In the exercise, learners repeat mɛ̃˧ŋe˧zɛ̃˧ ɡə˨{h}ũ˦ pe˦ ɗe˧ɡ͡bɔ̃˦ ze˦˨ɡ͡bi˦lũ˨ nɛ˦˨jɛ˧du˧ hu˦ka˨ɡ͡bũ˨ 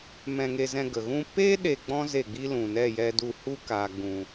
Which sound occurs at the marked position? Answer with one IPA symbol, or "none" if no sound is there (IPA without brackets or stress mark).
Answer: ɣ